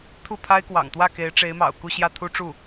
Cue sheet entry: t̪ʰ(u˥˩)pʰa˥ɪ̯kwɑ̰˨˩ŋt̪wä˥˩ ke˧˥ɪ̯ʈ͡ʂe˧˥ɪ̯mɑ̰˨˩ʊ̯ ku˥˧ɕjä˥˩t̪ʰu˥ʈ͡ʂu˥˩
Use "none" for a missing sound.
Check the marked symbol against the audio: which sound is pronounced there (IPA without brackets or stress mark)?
u˥˩